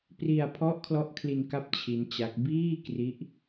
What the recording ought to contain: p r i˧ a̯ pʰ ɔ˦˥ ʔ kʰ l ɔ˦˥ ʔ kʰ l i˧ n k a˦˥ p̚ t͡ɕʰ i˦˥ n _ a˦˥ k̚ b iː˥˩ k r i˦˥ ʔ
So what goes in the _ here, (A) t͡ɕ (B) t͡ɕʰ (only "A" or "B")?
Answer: A